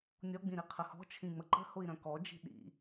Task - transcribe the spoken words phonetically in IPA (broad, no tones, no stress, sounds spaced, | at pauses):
nʲ ɔ ɡ͡b ĩ ɾ i qʰ ə h ɔ̤ t͡ʃʰ ĩ ŋ͡m ə ǃ ə̤ h ʊ i̯ ɾ œ̃ k ɔ d͡ʒ i̤ ɗ ḭ